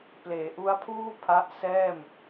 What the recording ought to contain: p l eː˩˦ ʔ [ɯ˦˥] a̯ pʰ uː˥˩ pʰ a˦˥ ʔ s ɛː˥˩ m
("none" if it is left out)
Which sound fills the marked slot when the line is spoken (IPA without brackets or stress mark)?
u˦˥